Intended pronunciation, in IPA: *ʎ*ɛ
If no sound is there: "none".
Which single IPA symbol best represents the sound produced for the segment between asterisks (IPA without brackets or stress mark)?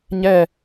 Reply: ɲ